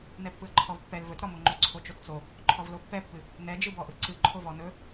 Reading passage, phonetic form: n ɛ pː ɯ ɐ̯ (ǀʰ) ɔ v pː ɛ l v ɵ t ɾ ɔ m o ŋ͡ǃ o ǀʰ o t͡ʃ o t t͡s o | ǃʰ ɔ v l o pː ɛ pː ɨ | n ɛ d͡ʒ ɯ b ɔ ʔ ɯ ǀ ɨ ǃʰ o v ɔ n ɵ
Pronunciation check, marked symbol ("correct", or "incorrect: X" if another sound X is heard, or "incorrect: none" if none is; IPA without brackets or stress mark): incorrect: ǃʰ